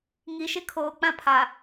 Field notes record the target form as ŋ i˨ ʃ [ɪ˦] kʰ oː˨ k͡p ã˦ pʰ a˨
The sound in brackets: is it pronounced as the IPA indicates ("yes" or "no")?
yes